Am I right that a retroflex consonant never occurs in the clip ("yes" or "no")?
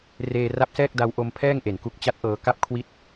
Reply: yes